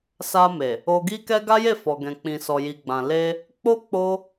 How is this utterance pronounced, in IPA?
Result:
sa˧ me˨ | o˧ɡi˦kɛ˦ ɡa˦je˦˨fɔ˨ ɡɛ̃˨k͡pĩ˨ sɔ˨ji˨ɡ͡bã˨ le˧ | k͡po˦ k͡po˦

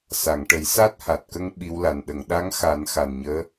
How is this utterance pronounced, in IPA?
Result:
sa˨˩˨ŋʈə˨˩˦j sa˦˥t̚ha˨˩t̚kə˧ŋ ɓi˧˥wla˨˩n ɗə˨˩˨ŋɗa˧˥ŋxa˨˩˦n xa˨˩nɲəː˧˥

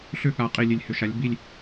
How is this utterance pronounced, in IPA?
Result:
ɬʏ˥˨ɠa˩˥ qʼi˨lʲe˨lʲhʏ˨ʃa˩˥lʲ bi˥˨lʲ

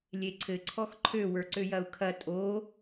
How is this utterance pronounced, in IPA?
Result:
lʲeǀʰɘ ǀʰɔxǃʰø wə˞ǀøjɐu̯kʰɐ tʼo

